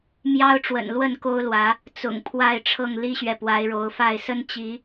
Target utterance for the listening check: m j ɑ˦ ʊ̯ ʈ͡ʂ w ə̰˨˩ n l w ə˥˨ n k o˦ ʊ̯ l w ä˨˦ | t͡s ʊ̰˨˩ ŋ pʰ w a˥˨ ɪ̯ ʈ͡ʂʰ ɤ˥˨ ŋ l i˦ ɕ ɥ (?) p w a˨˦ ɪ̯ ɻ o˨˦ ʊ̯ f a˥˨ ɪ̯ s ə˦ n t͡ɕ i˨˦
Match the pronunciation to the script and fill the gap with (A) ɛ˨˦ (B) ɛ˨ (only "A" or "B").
B